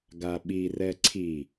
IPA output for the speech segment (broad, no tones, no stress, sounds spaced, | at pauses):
ɡ a ɓ i r ɛ ǀʰ i